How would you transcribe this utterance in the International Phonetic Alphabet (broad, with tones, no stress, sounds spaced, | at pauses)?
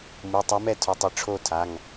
m u˩˧˩ tˤ ɛ˧˥ m ɛ˥˨ tʰ ʊ˩˥ tˤ ɪ˩˧˩ ʈ͡ʂʰ o˥˨ tʰ a˩˧˩ ŋ